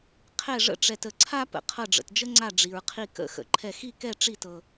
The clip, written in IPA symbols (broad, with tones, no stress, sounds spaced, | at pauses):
qʰ ɛ˥˨ ʐ ə̰˥˨ ʈ͡ʂ ɛ˧ t ə˧ ǀʰ a˥ p ə̰˧ qʰ ɤ˥˨ ɖ͡ʐ ə̰˧ t d͡ʒ ə˥ ŋ͡ǀ a˥˨ ɖ͡ʐ i˧ ɹ qʰ i˥˨ k ə̰˥˨ x ə̰˧ ǃʰ ɛ˥˨ x i˥˨ k ɛ˥˨ ʈ͡ʂ i˥˨ t ɤ˧